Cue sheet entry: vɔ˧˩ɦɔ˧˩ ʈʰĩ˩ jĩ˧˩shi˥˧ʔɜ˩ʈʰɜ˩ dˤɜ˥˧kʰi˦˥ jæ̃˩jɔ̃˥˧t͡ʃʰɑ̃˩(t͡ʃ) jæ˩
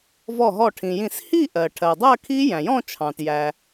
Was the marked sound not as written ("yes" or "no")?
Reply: yes